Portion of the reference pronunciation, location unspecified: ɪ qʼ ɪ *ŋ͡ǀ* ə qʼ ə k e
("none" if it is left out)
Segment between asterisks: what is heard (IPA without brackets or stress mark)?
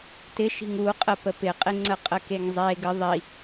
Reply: ŋ͡ǀ